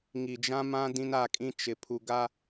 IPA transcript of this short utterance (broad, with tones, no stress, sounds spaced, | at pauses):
ŋ i˨ d͡ʒ ã˦ m ã˦ d ĩ˦ n a˦˨ kʼ ĩ˦ t͡ʃ ɪ˨ pʰ u˨ ɡ a˦